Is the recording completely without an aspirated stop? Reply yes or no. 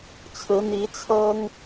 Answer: no